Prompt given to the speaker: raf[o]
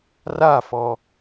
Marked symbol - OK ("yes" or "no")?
no